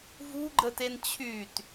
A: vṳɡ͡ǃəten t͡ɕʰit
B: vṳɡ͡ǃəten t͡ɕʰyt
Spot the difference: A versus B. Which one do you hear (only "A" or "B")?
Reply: B